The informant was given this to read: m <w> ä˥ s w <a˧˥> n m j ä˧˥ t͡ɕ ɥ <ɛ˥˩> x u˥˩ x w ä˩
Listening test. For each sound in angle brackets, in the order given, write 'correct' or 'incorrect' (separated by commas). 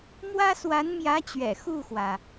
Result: correct, correct, incorrect